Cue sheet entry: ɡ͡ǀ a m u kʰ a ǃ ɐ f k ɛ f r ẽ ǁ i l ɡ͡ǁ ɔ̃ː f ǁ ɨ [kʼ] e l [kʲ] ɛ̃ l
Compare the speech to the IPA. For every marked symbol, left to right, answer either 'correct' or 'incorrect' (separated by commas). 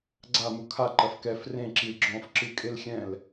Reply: correct, incorrect